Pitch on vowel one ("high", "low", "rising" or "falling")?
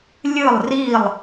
falling